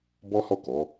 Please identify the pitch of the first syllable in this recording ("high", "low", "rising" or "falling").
high